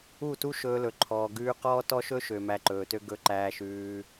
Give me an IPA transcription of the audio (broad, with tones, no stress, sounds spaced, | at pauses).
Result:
u˦˨ t u˦ ʃ ɵː˧ l ɵ˨ ǃʰ ɔː˨ ɡ ʉː˧ q ɔː˦ t ɔ˦ ʃ ɵ˦ ʃ ø˨ m æ˧ ǃ ɵː˨ t ø˦ ɡ ɵ˧ ǃ æː˧ ʃ ʉː˧